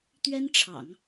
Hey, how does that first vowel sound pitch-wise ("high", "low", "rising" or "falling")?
high